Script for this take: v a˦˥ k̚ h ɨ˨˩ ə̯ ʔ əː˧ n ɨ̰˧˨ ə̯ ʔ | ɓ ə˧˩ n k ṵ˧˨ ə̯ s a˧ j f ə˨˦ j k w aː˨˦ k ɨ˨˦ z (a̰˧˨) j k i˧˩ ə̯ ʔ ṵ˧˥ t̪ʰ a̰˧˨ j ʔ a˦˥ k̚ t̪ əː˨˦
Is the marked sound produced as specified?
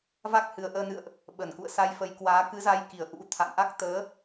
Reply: no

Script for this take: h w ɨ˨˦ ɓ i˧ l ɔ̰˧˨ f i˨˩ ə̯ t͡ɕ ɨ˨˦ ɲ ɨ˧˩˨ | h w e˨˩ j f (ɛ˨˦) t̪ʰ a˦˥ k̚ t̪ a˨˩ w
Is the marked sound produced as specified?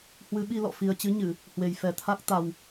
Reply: no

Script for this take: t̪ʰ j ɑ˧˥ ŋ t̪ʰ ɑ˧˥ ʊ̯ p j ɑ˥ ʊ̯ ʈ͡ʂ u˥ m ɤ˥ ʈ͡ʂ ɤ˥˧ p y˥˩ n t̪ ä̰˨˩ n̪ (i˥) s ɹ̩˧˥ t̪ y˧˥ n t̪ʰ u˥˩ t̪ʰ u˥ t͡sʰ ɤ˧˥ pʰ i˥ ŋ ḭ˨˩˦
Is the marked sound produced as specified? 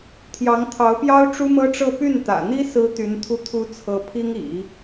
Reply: yes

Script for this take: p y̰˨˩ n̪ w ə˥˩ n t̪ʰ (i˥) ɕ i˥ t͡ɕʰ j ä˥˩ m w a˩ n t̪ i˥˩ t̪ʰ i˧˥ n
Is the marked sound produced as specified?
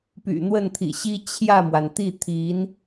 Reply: no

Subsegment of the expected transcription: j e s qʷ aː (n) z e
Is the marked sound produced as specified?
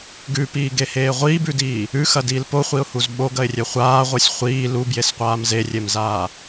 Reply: no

